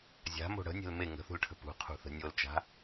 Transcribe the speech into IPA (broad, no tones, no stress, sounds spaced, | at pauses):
zʲ a̤ m o̤ ɽ ə̤ nʲ e̤ l m e ŋ ə̤ θ ṳ l ʈʰ ə̤ p ṳ qʰ ṳ θ ə̤ nʲ o l t͡ʃ a̤